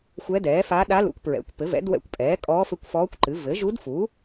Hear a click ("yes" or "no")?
yes